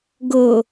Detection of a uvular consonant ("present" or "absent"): absent